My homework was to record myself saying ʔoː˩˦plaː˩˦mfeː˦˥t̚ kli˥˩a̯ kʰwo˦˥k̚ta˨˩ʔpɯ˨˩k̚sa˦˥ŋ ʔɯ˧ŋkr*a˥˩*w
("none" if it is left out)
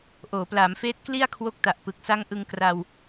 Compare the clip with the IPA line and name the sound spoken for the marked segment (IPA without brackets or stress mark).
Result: a˧